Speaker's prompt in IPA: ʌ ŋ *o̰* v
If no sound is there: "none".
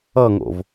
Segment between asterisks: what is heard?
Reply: o̰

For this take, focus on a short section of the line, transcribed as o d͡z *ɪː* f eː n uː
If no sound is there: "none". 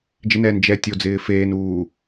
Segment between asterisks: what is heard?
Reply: ɪː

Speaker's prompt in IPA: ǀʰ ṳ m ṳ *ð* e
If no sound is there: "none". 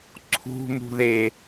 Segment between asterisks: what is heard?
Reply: ð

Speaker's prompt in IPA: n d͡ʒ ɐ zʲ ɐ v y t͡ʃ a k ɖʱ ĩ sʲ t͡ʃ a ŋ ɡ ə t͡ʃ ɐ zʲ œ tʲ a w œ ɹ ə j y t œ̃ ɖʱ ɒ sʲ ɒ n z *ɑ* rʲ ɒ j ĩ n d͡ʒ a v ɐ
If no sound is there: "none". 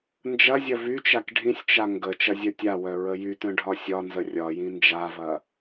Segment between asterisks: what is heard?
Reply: ə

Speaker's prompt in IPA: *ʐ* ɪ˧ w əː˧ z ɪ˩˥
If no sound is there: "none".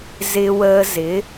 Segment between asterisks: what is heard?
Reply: z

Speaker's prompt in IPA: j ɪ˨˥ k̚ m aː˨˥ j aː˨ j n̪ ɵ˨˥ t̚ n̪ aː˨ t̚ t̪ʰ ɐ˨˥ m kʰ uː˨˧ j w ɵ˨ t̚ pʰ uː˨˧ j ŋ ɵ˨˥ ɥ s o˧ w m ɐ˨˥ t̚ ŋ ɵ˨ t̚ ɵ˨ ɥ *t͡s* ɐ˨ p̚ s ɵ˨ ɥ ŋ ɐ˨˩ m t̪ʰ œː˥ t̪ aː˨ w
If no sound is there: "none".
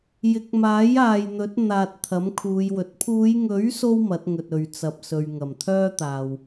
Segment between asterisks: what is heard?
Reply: t͡s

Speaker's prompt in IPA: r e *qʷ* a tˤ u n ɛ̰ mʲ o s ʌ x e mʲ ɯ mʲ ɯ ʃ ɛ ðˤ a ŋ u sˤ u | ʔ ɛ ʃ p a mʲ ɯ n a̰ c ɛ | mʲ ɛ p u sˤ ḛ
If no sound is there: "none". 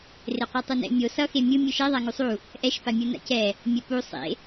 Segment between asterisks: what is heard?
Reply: qʷ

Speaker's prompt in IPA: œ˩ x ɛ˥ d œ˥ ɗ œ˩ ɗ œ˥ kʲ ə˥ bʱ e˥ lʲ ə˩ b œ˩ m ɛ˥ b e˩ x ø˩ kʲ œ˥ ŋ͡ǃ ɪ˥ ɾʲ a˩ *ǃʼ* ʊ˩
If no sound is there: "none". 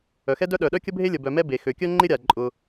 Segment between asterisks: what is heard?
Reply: ǃʼ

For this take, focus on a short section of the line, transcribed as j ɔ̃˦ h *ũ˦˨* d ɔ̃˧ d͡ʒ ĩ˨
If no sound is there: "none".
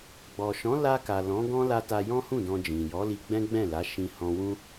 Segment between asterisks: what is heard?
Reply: ũ˦˨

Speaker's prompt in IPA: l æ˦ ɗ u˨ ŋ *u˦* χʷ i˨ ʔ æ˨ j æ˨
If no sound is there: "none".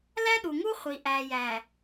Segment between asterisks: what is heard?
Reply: u˦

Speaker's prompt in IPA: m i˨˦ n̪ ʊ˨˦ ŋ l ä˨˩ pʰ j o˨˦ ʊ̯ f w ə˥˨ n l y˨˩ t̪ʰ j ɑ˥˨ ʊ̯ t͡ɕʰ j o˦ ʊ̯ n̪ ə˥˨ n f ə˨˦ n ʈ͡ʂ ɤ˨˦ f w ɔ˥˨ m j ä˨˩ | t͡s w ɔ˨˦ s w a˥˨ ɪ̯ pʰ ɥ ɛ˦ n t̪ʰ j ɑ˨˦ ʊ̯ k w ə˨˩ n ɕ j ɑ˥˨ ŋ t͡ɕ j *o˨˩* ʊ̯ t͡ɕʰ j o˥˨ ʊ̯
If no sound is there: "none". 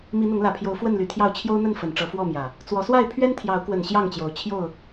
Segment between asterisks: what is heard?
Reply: o˨˦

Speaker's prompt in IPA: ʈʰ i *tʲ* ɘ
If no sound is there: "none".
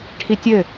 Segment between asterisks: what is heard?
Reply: tʲ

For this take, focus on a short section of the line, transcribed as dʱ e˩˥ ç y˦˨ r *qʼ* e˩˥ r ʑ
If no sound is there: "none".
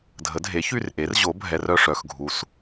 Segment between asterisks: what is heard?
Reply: ʔ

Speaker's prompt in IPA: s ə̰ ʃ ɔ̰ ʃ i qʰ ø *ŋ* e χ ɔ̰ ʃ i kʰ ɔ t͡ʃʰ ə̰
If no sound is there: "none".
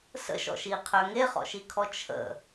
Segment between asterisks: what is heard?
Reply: ŋ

